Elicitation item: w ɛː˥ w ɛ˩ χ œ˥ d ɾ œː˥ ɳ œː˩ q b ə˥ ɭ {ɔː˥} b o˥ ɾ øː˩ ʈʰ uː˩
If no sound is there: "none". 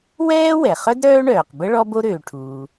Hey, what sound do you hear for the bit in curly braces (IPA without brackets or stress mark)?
ɔ˥